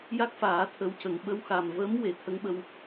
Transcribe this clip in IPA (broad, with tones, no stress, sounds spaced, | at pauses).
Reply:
j a˦˥ k̚ f aː˨˩˦ t̪ʰ ə˧˥ w c ə˨˩˨ ŋ ɓ ə˧ w x a˨˩ m v ə˧˥ m w e˨˩˨ t̪ʰ ə˧˥ ŋ ɓ ə˧ w